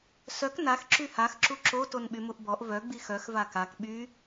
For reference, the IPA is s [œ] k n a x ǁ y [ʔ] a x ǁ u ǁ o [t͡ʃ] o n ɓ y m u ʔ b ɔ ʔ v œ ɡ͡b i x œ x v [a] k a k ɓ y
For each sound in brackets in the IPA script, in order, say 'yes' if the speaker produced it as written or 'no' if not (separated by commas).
yes, no, no, yes